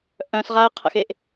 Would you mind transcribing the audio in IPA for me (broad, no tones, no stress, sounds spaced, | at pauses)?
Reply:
ʔ œ̃ s ʁ a ə̯ qʰ ə̰ x e ʔ